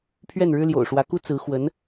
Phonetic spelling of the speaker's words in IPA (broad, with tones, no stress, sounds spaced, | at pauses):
pʰ ɥ ɛ˥˩ n ɻ ɻ̩˥ l j o̰˨˩ ʊ̯ ʂ w ä˧˥ k u˥ t͡s ɹ̩˧˥ x w ə˧˥ n